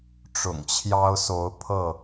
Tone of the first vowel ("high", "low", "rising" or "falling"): low